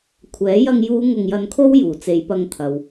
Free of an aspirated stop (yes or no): no